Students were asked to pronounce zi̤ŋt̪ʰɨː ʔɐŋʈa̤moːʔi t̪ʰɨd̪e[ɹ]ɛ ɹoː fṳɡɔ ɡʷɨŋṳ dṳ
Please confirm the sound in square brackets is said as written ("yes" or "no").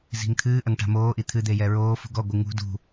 no